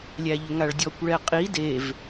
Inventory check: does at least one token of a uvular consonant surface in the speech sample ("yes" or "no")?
yes